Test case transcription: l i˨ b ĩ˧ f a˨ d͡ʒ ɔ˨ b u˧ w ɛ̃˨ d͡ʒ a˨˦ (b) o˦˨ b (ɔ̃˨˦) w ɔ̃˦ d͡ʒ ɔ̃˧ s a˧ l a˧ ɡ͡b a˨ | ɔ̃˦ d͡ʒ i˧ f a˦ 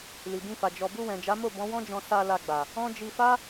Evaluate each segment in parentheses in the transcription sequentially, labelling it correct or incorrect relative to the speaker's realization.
incorrect, correct

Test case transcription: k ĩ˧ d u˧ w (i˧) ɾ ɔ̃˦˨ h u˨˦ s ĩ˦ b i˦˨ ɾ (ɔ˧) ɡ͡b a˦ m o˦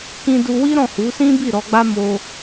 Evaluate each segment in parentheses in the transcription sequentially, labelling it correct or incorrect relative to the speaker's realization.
incorrect, correct

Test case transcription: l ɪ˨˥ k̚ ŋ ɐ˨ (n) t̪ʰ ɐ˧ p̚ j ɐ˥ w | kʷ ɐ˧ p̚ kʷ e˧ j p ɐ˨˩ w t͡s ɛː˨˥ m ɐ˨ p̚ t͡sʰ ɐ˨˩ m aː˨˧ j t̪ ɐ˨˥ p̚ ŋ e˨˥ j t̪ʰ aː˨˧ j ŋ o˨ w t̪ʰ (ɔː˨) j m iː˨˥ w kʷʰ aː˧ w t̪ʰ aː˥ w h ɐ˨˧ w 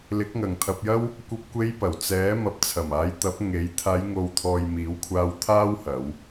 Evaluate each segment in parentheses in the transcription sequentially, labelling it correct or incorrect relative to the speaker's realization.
incorrect, correct

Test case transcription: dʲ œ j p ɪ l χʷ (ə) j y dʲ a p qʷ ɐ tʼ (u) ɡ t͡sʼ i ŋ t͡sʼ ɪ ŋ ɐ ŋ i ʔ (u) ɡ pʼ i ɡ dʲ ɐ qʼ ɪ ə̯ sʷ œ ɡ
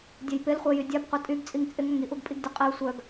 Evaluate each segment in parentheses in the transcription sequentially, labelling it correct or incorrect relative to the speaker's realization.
incorrect, incorrect, correct

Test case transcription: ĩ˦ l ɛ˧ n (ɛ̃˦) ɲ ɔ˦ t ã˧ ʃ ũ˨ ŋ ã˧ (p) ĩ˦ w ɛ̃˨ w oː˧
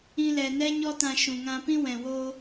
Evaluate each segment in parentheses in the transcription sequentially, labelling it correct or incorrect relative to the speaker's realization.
incorrect, correct

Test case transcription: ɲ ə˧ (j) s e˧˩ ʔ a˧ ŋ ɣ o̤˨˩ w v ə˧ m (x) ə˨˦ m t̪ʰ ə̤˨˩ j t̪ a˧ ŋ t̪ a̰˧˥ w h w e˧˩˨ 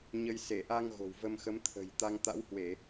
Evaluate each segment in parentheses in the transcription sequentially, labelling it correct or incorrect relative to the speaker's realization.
correct, correct

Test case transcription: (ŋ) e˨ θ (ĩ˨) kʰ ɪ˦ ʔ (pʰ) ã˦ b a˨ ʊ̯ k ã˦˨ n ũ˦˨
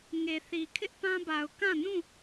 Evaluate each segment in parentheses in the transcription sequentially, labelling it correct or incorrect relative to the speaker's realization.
correct, incorrect, incorrect

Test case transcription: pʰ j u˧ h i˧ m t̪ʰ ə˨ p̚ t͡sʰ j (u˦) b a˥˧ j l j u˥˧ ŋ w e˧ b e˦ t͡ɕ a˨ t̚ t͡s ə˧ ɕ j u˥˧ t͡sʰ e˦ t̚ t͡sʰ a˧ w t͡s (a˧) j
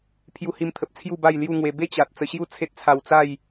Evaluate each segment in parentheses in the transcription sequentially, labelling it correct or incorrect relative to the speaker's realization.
incorrect, incorrect

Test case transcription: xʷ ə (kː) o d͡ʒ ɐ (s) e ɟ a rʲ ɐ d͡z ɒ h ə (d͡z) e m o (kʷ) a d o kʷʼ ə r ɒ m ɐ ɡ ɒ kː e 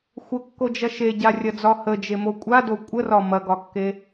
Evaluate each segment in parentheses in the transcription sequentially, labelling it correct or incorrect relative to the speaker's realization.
correct, incorrect, incorrect, incorrect

